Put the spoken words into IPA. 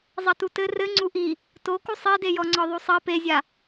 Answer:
zˤ ɐ t u t ɘ r ɘ ŋ͡ǀ u ʔ i | t o k u sˤ e d e j ɔ ŋ͡ǀ ɔ ðˤ u sˤ ɘ p e zʲ a

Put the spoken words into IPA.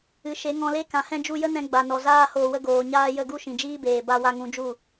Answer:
ɨ˨ ʃ e˨˦ ŋ ɔ̃˧ l e˦ k ã˨ h ɛ̃˧ d͡ʒ u˧ j ə˦ n ɛ̃˧ ɡ͡b a˨ n ɔ˨ z aː˧ h oː˨ w ə˧ ɡ oː˨ ɲ aː˧ j ə˦˨ ɡ u˦ ʃ ĩ˨ d͡ʒ iː˦ b eː˨ b a˧ w a˧ ŋ ũ˨˦ d͡ʒ u˦˨

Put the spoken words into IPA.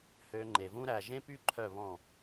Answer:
h ø˧ ŋ͡ǃ e˨ v ũ˦ ɾ æ˨ ʒ ẽ˦ p y˦ ǃʰ œ˦˨ β ɔ̃˦˨

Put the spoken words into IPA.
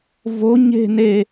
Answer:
v o ɲ e̤ n e

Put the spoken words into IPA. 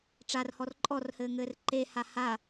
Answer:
ʈ͡ʂ a r h ɔ r ǃʼ ɔ r h ɘː ŋ ɘː r ǃ e h a h a

